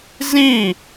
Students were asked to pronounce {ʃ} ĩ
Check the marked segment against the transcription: incorrect: z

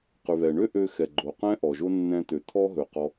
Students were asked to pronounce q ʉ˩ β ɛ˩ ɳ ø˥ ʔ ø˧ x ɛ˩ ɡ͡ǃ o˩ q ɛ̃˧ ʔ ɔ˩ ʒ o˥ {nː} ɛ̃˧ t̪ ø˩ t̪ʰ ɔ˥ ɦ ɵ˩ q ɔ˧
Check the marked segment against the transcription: correct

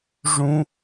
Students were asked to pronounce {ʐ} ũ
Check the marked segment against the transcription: correct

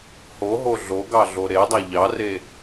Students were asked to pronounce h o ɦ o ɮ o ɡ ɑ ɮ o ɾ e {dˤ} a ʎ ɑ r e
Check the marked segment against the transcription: correct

